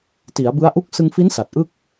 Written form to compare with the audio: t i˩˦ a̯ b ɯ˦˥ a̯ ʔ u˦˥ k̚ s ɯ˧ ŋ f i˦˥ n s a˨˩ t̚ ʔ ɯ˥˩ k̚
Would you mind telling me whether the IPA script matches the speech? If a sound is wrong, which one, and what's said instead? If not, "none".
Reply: none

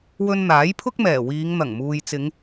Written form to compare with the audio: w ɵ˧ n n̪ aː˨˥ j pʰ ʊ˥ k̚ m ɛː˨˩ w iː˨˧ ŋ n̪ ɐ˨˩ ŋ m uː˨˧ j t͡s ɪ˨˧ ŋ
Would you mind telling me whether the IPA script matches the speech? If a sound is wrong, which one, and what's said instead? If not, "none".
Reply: uː˨˧ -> uː˨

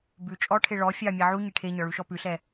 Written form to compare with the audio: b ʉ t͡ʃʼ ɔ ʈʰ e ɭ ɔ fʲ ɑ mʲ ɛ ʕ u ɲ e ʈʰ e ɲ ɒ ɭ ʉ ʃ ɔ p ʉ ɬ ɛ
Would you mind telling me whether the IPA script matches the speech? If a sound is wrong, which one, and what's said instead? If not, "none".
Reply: none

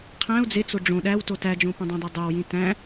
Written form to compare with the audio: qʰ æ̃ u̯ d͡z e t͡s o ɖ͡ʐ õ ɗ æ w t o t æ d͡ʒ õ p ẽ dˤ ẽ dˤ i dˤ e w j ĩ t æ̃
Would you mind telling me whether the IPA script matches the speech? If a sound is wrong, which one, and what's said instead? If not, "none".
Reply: none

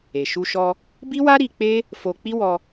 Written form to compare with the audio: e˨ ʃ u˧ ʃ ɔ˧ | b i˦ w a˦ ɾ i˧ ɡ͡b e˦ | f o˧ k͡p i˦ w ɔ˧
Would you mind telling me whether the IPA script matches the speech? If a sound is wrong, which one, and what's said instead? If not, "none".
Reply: ɡ͡b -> k͡p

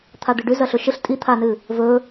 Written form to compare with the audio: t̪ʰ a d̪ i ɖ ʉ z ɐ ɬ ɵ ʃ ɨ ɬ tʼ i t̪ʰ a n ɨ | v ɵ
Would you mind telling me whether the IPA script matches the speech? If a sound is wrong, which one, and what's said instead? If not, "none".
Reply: none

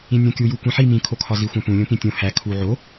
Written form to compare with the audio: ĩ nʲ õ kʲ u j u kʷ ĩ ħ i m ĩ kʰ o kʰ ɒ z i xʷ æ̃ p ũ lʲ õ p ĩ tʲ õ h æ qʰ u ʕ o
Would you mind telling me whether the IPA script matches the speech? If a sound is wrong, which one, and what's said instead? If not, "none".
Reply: qʰ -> kʰ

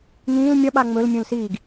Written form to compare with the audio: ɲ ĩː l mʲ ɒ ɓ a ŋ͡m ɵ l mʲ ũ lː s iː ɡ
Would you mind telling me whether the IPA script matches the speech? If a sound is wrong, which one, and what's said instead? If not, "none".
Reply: lː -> l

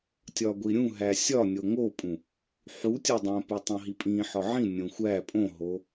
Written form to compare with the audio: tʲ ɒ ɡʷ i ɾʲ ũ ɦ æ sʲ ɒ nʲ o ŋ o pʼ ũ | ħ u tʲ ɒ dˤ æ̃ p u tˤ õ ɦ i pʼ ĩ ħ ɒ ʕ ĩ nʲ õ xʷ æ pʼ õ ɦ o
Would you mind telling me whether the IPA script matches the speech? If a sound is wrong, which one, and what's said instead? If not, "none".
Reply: none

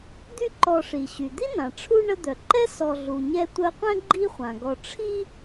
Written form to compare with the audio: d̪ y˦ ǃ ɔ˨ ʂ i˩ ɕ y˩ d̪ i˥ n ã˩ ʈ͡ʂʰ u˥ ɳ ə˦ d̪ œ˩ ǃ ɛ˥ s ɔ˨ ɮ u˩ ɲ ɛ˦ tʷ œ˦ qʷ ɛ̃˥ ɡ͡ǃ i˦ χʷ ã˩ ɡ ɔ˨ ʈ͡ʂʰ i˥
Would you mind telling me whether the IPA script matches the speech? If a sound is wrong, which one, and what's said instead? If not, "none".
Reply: none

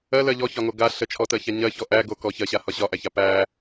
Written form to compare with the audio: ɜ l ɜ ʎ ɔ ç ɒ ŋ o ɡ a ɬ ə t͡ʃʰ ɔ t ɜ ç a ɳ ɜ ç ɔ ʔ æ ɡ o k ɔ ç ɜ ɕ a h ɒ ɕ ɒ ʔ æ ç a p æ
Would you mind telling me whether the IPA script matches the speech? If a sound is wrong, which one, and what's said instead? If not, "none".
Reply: ɳ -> ɲ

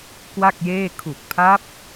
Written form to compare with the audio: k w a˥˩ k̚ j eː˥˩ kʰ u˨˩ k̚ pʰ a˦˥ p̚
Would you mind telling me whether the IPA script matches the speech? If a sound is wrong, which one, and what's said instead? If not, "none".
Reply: none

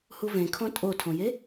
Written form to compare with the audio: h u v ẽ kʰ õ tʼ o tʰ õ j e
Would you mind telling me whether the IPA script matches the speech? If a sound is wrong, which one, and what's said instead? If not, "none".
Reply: none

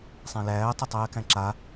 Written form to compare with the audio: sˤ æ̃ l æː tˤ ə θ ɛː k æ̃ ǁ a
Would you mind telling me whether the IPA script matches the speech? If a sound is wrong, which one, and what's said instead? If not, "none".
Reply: θ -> tˤ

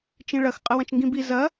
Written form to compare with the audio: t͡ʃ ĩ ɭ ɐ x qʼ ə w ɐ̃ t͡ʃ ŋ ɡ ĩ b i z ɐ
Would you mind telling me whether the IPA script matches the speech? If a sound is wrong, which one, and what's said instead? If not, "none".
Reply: none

